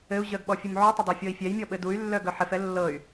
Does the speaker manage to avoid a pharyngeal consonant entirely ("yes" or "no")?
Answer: no